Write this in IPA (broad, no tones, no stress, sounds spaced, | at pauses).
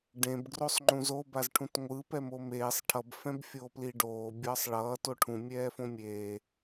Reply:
ɖ ẽ b ɡ r o sˤ ŋ͡ǃ ũ z o b a z ʈʰ ũ t ŋʷ ɯ p ɛ m o m eː sˤ ʈʰ ʌ b f ɛ̃ b fʲ oː p l i ɖ oː bʲ ʌː sˤ ɭ ʌː t o ʈʰ ũ mʲ ɛː f õ mʲ eː